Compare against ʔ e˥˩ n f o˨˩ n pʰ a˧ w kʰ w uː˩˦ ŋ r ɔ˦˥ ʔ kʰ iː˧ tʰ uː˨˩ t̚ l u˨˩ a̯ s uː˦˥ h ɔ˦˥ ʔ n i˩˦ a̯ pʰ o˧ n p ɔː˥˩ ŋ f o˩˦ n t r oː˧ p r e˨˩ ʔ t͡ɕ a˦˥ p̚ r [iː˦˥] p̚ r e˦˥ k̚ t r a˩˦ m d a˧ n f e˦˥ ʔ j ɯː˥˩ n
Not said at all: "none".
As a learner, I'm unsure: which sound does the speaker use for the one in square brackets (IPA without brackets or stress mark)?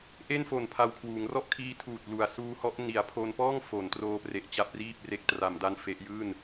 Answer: iː˥˩